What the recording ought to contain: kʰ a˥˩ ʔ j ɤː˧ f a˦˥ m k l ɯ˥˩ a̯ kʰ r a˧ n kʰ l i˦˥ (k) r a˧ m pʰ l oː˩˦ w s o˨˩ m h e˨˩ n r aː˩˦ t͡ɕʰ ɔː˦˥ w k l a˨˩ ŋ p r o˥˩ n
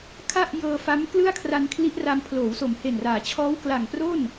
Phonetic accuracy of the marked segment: incorrect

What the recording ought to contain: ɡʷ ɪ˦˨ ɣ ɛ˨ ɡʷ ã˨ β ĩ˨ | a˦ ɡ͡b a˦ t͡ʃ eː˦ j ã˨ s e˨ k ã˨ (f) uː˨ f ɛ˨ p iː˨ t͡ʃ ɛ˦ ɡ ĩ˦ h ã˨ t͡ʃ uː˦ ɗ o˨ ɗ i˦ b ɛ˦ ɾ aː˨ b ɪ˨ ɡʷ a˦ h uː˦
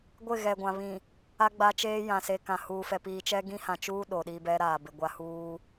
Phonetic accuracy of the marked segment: incorrect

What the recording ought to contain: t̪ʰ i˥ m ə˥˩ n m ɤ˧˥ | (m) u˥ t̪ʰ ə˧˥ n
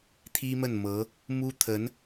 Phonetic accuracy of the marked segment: correct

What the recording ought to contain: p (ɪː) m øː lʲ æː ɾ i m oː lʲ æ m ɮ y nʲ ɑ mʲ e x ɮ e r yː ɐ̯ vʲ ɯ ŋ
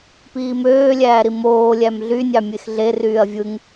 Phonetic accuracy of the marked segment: incorrect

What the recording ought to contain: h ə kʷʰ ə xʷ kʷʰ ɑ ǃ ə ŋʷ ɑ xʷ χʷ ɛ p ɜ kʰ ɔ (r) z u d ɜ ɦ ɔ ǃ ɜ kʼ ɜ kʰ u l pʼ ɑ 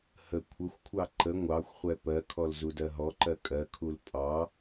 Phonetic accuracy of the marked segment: incorrect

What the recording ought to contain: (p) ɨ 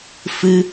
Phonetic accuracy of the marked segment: incorrect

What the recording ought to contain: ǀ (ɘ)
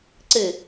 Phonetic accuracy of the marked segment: correct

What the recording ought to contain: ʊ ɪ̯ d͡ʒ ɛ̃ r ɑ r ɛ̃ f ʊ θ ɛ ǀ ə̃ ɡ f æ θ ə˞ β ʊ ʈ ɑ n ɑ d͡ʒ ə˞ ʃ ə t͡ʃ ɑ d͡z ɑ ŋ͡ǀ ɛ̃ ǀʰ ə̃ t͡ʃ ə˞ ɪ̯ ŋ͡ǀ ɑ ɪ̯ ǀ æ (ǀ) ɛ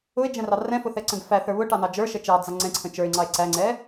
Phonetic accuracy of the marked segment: incorrect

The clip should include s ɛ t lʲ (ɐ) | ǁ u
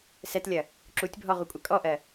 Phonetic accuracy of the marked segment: correct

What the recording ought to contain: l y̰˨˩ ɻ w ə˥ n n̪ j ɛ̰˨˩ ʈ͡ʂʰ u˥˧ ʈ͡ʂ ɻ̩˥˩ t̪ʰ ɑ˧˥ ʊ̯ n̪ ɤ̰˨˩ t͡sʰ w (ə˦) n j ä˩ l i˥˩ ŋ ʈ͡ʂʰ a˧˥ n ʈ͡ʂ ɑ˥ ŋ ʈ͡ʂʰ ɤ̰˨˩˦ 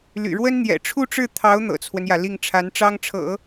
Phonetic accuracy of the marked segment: correct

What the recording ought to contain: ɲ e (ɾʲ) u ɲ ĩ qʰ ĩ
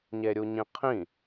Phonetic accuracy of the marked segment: correct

